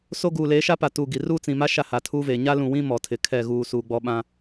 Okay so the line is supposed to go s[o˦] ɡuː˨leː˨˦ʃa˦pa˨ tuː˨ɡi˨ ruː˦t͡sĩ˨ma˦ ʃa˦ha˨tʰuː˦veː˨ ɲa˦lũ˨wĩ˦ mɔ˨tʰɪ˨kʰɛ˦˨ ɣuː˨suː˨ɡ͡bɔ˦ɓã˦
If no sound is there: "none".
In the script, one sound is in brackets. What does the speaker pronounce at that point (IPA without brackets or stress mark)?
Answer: o˦